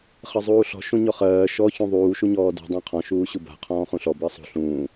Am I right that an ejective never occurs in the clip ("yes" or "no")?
yes